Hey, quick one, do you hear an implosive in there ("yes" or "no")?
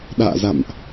yes